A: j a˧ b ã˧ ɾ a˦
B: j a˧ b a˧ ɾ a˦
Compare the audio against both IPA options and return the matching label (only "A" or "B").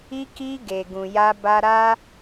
B